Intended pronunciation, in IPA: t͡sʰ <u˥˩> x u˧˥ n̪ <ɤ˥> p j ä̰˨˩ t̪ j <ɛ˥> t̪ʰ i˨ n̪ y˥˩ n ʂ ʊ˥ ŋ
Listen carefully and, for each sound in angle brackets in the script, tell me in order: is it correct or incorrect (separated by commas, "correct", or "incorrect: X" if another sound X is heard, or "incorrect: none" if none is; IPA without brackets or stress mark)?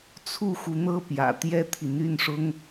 correct, incorrect: ɤ˥˩, correct